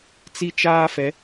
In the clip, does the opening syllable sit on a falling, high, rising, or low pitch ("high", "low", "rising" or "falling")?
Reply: high